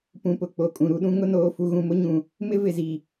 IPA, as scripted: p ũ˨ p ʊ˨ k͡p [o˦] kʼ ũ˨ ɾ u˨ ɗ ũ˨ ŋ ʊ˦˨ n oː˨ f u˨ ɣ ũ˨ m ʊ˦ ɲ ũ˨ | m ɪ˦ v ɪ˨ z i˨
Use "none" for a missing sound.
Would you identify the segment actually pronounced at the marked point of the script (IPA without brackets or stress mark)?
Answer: o˨